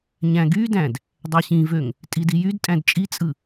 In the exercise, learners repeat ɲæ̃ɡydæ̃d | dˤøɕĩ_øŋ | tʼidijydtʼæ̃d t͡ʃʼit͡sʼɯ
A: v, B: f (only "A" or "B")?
A